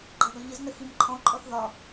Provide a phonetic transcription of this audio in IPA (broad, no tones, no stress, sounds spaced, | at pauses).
ɡ͡ǃ ɑ ɡ ɒ ʎ ɪ z n ə x i m ǃʰ ɔ̃ ǃʼ ɔ θ ð ɒ